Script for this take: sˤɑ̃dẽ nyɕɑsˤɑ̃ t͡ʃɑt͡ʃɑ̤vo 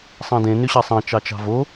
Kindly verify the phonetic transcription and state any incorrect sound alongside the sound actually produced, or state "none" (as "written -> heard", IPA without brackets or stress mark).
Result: none